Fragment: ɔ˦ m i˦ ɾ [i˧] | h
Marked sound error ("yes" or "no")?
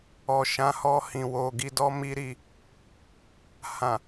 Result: no